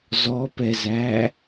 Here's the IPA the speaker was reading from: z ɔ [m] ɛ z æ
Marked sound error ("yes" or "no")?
yes